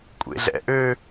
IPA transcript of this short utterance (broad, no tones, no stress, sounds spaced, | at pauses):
kʷʼ ḛ ɮ ɛ̰ ʔ ø